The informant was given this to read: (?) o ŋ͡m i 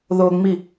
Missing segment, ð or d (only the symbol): ð